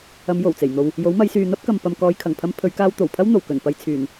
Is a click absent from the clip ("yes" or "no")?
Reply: yes